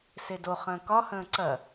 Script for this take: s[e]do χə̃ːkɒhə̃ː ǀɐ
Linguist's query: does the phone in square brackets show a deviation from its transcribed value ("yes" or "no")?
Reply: no